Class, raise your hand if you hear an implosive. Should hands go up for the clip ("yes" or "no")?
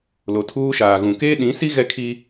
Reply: yes